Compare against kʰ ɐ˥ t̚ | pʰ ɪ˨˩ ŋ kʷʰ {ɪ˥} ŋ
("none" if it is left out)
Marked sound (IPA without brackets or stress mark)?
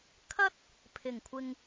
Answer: ɪ˨